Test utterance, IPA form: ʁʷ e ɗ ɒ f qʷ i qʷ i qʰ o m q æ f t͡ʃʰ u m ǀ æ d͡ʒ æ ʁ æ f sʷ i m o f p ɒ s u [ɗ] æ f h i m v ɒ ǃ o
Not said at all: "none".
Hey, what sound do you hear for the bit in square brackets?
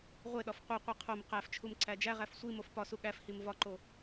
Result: ɠ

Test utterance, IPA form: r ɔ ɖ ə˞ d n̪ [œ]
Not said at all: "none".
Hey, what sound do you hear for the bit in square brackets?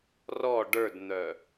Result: œ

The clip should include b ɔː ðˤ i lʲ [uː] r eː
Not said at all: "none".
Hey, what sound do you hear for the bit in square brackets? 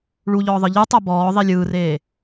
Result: ɯː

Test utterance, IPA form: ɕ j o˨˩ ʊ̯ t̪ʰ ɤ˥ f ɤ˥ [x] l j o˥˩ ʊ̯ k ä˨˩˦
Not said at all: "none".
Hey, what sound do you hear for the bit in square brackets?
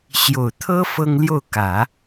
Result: ŋ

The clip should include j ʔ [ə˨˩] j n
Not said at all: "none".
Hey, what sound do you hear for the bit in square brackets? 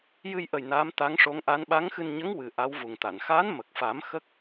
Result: ə˨˩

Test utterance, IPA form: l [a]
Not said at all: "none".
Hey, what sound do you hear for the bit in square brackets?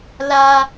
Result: a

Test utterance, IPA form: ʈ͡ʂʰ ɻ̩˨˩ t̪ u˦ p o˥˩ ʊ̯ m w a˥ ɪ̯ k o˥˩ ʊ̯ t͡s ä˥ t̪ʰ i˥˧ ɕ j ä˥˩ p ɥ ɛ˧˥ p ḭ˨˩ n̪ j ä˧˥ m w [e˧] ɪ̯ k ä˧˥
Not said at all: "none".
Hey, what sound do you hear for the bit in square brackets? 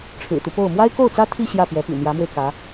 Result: e˧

